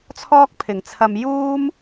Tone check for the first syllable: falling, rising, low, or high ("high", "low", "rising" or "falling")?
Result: high